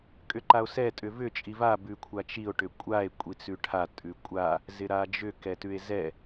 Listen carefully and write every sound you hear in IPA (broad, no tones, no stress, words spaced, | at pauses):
kʼʏǃao̯sɛ tʼʏvʏ t͡ʃʼiva bʉkʷʰat͡ʃio̯ ʈʏkʷʼae̯ kʷʼit͡sʉʈʰa tʼʉkʷʼa | zɪɾad͡ʒʏ kɛtʉe̯zɛ